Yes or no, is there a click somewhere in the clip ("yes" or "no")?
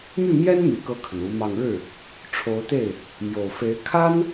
no